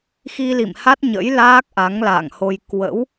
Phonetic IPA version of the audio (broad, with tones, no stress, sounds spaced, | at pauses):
x i˧ l ḭ˧˨ m h a˦˥ t̚ ɲ ə̰˧˥ j l aː˦˥ k̚ ʔ a˨˦ ŋ l a̰ː˧˨ ŋ h o˧ j k w ə̰˧˥ w